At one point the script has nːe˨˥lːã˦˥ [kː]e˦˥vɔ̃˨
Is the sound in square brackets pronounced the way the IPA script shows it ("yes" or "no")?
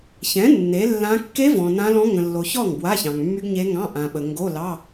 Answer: yes